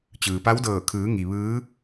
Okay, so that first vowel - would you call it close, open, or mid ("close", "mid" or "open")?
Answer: close